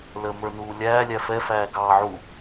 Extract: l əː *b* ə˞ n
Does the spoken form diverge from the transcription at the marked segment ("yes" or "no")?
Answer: yes